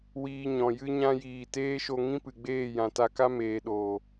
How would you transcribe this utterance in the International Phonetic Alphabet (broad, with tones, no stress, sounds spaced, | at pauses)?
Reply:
w iː˧ ɲ ɔ̃˨ j ɨ˦ ɲ ã˦ j iː˨ t eː˦ ʃ o˧ ŋ ĩ˦ p ɨ˨ ɡ͡b eː˦˨ j ã˨ t a˧ k a˦ m eː˨ ɗ oː˨